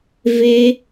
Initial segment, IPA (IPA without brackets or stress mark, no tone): v